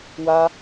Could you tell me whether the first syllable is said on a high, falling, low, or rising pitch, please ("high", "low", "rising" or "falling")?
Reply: high